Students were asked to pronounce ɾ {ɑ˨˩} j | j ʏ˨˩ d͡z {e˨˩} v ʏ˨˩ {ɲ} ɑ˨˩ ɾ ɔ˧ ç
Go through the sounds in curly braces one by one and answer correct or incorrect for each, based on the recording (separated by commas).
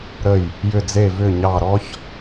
incorrect, correct, correct